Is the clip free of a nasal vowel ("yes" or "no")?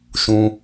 no